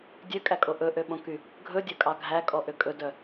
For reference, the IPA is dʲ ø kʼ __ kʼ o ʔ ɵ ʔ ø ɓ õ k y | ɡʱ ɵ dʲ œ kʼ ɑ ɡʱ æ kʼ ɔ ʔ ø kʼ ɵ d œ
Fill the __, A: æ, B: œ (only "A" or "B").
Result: A